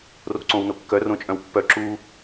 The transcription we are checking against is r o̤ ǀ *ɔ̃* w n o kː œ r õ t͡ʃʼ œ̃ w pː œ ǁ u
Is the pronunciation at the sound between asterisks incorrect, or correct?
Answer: incorrect: õ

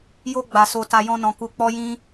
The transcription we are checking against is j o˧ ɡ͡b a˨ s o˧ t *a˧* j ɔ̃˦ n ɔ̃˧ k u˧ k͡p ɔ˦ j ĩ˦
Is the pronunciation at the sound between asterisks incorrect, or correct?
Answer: correct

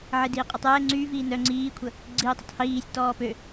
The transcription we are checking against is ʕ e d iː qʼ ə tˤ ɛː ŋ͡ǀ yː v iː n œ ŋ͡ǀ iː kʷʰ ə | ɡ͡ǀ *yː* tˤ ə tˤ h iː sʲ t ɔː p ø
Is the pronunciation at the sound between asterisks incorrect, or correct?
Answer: incorrect: iː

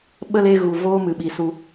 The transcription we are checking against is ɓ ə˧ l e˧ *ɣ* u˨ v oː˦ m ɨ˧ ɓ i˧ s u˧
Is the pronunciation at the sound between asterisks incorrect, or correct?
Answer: correct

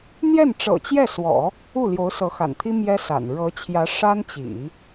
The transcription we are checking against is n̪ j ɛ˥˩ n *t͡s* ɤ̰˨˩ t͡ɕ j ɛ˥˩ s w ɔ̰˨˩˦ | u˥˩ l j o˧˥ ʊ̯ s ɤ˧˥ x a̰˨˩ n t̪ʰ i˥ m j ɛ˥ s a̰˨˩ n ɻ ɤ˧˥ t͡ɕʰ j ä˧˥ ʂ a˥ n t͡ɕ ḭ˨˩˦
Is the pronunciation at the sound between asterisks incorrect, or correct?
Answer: incorrect: ʈ͡ʂ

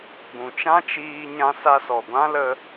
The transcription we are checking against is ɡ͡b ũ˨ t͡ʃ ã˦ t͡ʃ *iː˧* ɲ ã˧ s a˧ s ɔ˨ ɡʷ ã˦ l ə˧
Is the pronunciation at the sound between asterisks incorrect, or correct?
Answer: correct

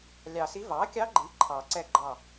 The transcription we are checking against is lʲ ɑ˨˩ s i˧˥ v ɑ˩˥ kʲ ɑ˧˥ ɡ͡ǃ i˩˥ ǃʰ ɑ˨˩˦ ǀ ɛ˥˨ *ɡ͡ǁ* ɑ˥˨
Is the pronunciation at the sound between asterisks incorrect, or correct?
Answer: incorrect: ɡ͡ǃ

